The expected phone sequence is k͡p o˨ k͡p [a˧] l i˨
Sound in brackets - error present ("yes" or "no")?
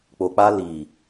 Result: no